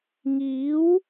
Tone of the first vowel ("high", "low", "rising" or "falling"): rising